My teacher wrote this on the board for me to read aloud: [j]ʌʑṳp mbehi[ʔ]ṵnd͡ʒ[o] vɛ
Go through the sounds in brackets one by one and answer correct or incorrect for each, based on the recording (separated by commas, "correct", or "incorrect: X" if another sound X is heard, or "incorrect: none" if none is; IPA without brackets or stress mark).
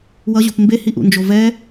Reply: incorrect: w, correct, correct